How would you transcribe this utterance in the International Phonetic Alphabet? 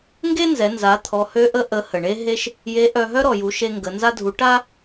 ŋɡe˥nzɛ˩˧nza˩˧ t̪ʰɔ˩˧hø˧˥ʔə˧˥ ʔə˩˧ hə˩ɳe˥ɦe˥ʃ | je˧˥ʔœ˧ ɦœ˥ɾɔ˩ju˩˧ ʃe˧ŋɡə˩˧ nza˧dʱu˩˧ ʈa˥

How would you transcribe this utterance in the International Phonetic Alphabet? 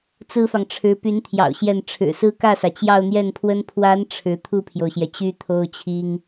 t͡sɹ̩˥fɑ˨ŋʈ͡ʂʰɻ̩˧˥ py˧˥nt̪ʰjɑ̰˨˩ʊ̯ ɕjɛ˥˩n ʈ͡ʂʰɻ̩˨˩sɹ̩˥ kä˥˩sä˩ t͡ɕjɑ˥˧ʊ̯n̪jɛ˥˩npʰwə˥n pʰwa˧˥n ʈ͡ʂʰɻ̩˧˥ t̪ʰu˥˩pʰjo˩ʊ̯ɕjɛ˩ t͡ɕy˥t̪ʰo˥ʊ̯t͡ɕʰi˥ŋ

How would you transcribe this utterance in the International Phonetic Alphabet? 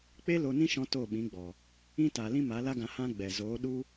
k͡pe˦ lo˧nĩ˦ ʃɔ̃˦to˦˨ɓĩ˨˦ɡ͡bɔ˨ | ĩ˦ta˨ lĩ˦ma˨˦la˦ɡã˧ hã˦ɡ͡bɛ˨ zoː˨˦ɗu˦

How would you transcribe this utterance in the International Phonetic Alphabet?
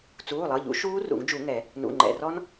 t͡suː˩˧˩lˠɤ˩˧˩ʎṵ˨˩˦ ʃuː˦˥rṵ˨˩˦ŋd͡ʒu˨˩˦ŋɛ˨˩˦ | nṵ˩˧˩ŋ͡ǃɛ̰˩˧˩rɔ˦˥n

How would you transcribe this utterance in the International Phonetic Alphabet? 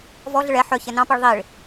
vɔɮɪɭ ɛ ħœ çɛnɑ̃piɭ ðˤiɭ

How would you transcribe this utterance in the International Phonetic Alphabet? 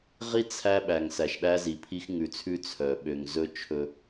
ʁi˦ t͡sʰæ˦ɓæ˨ŋ sæ˨ʃɗæ˦zi˨pʰi˦x ŋʉ˨t͡sʰʉ˦ t͡sʰœ˨ ɓø˨ŋzɵ˦ t͡ʃʰɵ˦

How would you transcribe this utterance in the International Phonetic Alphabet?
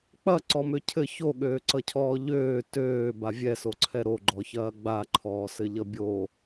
k͡pɐ ǀɔmøcʰɘ çoɠøːǀʌcʰɔː ʎøː tøː bavʲɛsoǀʰɛ ɾoɡ͡ǃɔçɐː ɡ͡ba ǃʰɔːsɘʎʌbʲo

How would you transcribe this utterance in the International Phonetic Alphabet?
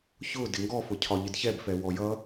çʊ dɪŋɡɔfʊ cʰɒʎɪdçɛbfɛ wɔjʌ

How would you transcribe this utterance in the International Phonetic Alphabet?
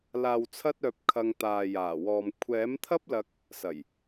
laː˨wt͡sʰɐ˧t̚œː˨p̚ kʰɐ˧ŋ t̪aː˨jaː˨˩wɔː˨m kʷʰɛː˨˥mt̪ʰɐ˥p̚lɐ˧k̚ | sɐ˨˩j

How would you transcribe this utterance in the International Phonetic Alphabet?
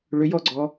ɭʏjɔɡ͡ǀɔ

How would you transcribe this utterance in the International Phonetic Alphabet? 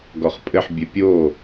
ɡɔχpʼɘħ bʲɘpʲo

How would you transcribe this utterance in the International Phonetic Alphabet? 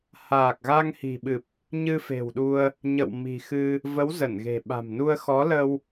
haː˨˩k̚ ɣa˧ŋhi̤˨˩ɓɨ˨˩p̚ | ɲɨ˧fe̤˨˩wɗu˧ə̯ | ɲə̰˧˨wmi̤˨˩xɨ˧ | və˨˦w zə˧˩nɣe̤˨˩ɓa̤˨˩mnu˧ə̯ xɔ˨˦lə˧w

